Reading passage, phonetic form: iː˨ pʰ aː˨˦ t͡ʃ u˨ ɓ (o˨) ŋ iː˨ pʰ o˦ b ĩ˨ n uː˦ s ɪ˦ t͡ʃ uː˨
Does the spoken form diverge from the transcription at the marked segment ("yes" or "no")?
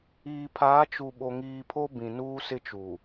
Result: no